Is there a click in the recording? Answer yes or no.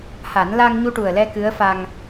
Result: no